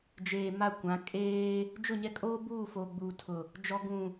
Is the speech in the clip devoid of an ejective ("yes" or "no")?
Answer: no